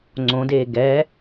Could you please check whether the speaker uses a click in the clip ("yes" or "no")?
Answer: yes